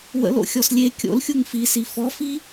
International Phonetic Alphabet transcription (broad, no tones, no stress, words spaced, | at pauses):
wə̰l o̰xʲɔslʲe kʲo̰lxʲuŋ fisi fɔfi